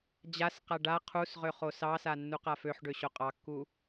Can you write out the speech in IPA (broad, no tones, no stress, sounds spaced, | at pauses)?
d͡ʑ a s q a ɖ a qʰ u s ʁ ø χ o s ɑ s a nː u q a f ø ħ ɖ ø ɕ o qʼ ɑ kː u